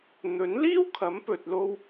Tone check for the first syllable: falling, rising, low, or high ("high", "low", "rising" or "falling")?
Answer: rising